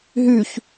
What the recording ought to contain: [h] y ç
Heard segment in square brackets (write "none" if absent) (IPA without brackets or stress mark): ɦ